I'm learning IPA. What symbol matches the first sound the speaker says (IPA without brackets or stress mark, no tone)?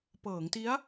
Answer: p